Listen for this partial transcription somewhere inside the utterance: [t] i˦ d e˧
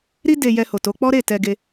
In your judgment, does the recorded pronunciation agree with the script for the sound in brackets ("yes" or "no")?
no